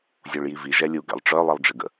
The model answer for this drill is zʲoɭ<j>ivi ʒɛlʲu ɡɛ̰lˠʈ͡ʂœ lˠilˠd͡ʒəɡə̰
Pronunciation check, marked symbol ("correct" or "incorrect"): correct